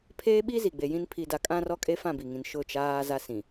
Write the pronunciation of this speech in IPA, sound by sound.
pʰ eː˦ ɓ i˦ z i˨ ɡ͡b e˨ j ĩ˦ n pʰ i˨ d a˨ kʼ ã˦ r ɔ˦ kʼ e˦ f ã˦˨ b i˨ ŋ ĩ˨ n ʃ ʊ˦˨ t͡ʃ aː˦ z a˦ s ĩ˨

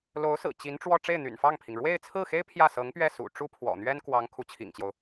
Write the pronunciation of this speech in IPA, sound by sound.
l o˧˥ ʊ̯ s ɹ̩˨˩ t͡ɕ i˧˥ n ʈ͡ʂ w ɔ˥˧ ʈ͡ʂ e˥˩ ɪ̯ n̪ y̰˨˩ n f ɑ˥˩ ŋ pʰ i˩ ŋ ɻ w e˥˧ ɪ̯ t͡sʰ ɹ̩˥˩ x e˥ ɪ̯ pʰ j ä˥˩ s ɤ˧˥ ŋ p ɥ ɛ˥˩ s ṵ˨˩ ʈ͡ʂ u˥ pʰ w ɔ̰˨˩ n̪ ɥ ɛ˥ n k w ɑ˧˥ ŋ kʰ u˧˥ t͡ɕʰ ḭ˨˩ ŋ t͡ɕ j o˦ ʊ̯

